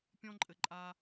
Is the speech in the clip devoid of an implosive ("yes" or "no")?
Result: yes